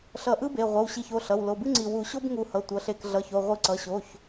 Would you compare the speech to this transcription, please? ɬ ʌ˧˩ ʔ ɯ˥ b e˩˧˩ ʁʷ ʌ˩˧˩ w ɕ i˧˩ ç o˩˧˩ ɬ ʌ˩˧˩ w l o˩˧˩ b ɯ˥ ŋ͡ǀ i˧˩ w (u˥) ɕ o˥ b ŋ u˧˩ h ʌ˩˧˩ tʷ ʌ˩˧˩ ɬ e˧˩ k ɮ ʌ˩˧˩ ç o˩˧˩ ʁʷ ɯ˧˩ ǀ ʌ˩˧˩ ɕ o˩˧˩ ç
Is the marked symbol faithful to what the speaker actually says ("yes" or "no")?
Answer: no